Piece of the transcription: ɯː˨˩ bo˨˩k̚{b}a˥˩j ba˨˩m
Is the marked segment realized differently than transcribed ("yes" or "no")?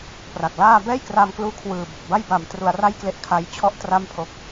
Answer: no